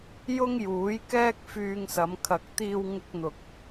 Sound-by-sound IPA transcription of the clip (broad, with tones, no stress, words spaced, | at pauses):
jʊ˥ŋjuː˨˥j kɛː˥k̚fyː˧ŋsɐ˨˧m kʰɐ˨k̚t̪iː˧wŋɪ˧k̚n̪ʊ˨k̚